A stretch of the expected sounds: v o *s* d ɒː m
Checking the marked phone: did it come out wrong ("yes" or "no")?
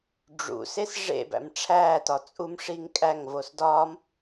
no